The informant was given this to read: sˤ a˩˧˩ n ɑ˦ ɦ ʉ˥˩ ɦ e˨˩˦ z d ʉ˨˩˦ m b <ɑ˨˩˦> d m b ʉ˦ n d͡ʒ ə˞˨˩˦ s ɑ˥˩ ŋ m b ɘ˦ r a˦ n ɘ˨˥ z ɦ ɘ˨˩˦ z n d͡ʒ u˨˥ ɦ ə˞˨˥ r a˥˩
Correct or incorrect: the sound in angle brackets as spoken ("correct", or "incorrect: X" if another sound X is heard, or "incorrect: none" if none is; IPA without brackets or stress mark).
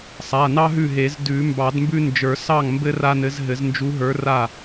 correct